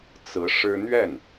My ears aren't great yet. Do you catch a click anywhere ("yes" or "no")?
no